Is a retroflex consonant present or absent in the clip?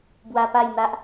absent